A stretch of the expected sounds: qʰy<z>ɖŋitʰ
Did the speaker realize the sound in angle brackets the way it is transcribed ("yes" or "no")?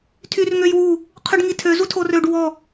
no